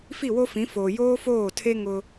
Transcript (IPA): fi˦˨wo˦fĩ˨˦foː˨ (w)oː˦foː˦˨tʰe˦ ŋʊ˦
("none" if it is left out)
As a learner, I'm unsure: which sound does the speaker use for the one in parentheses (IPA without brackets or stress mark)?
j